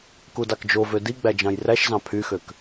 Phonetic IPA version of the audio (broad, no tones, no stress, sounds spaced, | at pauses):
k u d ɑ k d͡ʒ o v ø d i ɡ͡b æ d͡ʒ ɑ̃ j r æ ʃ z ɑ̃ pʰ y x ø k